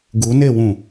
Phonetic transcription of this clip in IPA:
ɡ u n e w ũ

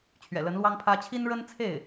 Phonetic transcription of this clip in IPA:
t͡ɕʰ ɥ ɛ̰˨˩ l ə˧˥ n l w ɑ˥ ŋ pʰ ä˥ t͡ɕʰ i˥ n ɻ ə˥ n t͡sʰ e˥˩ ɪ̯

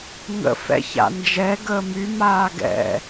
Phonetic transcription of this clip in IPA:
ŋ ə̰ f ɛ̰ ç a̰ n d͡ʒ ɛ ɡ əː m y m aː ɡ ɛ̰

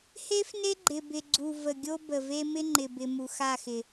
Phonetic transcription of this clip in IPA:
h e˦ f n e˦ ɡ͡ǃ ɪ˨ b ɪ˨ ɡ͡ǀ u˨ v ə˨ ɡʲ o˦ b ə˨ v e˦ m ɪ˦ ŋ͡ǃ ɪ˨ b ɪ˨ m u˨ x a˦˨ x ɪ˨

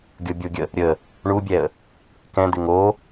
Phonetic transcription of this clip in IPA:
ɡʲ o bʲ o ɡʲ ə | ɾʲ ə | ɳ u bʲ ɛ ə̯ | k ɛ̃ d̪ ɪ ŋ o

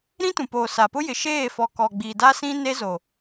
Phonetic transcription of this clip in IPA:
ɾ ĩ˦ t ũ˨ p oː˨ s a˨ p ʊ˦ j ɪ˨ ʃ eː˦˨ f ɔ˨ k ɔ˨ ɡ͡b iː˨ d a˦ s ĩ˦ n e˦ z o˨

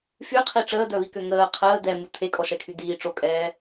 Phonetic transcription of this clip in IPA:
f y qʰ i ʈ͡ʂ əː d̪ œ β i k ø ŋ əː qʰ əː d̪ ɛ m u t̪ʰ e kʼ ɔ ʃ ɛ kʰ y d̪ iː ʈ͡ʂ o kʼ ɛː

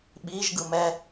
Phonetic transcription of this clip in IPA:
ɓ i ʒ ɡ ɯ m ɛ

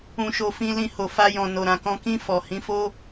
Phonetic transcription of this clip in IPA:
ũ˨ ʃ o˨ f ĩ˧ l ĩ˧ h o˨ f a˧ j ɔ̃˨ n o˨ ɾ ã˨ k ɔ̃˧ k ĩ˧ f ɔ˨ h ĩ˨˦ f o˦

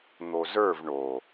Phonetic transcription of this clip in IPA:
n̪ o z ə˞ v ɳ o

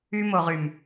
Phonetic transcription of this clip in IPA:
y˦ m o˨ ʁ y˨ m

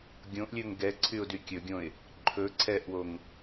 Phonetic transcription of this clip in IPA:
ɡʲ õ ʔ lʲ ɵ ŋ ɡ ɛ ǀʰ y ʊ̯ d y kʲ ɵ ɡʲ õ ɪ̯ | ǃʰ ɵ ǀʰ ɛ ʔ w o ŋ

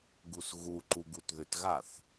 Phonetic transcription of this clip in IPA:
ɡ u s ɣ u ǃ u ɡ u t ð ʏ t ɣ a θ

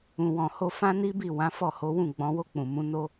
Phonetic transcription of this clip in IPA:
ũ˨ w ɔ̃˨ h o˧ f ã˦ n i˦ b i˦˨ w ã˨˦ f ɔ˦˨ h o˨˦ w ũ˦˨ ɡ͡b ɔ̃˨˦ w o˦˨ k͡p ũ˨ m ũ˨˦ n o˧

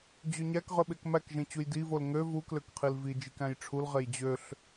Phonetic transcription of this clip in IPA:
d͡ʑ ø ɲ æ k ʁ ø ɓ e k m æ k ʒ ẽ t͡ɕ u j d i v o l ŋ ø v u k l ø k qʰ i l v i d͡ʒ i k æ̃ j ʈ͡ʂʰ u l ʁ e j d͡ʑ ø ɬ

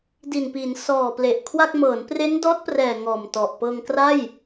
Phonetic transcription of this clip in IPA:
d i˨˩ n p i˩˦ n s ɔː˨˩ p l e˨˩ ʔ kʰ w a˥˩ k̚ m ɤː˩˦ n p r e˦˥ n d ɔː˦˥ t̚ p r ɛː˨˩ ŋ ɔː˨˩ m t ɔ˨˩ ʔ p ɤː˧ ŋ k r a˥˩ j

